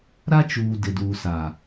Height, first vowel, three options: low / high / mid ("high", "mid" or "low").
low